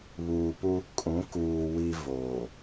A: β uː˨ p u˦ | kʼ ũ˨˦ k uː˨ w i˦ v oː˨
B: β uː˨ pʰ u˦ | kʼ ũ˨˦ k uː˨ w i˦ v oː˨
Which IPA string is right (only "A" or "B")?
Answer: A